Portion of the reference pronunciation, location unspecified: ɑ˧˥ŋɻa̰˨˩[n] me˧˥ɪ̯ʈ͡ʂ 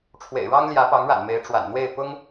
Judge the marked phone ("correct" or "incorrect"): correct